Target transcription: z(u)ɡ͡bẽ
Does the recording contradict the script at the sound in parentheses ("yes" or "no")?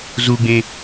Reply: no